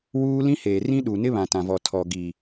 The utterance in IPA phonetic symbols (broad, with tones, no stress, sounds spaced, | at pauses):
w uː˦ l ĩ˦ h eː˨ r ĩ˦ ɗ u˨ n ɪ˦ β ã˨ t ã˨ v ɔ˨ tʰ ɔ˨ ɡ iː˨